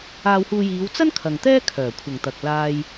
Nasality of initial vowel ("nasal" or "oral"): oral